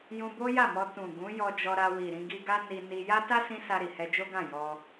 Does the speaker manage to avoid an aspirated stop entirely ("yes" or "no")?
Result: yes